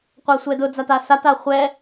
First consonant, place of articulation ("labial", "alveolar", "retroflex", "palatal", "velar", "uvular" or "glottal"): uvular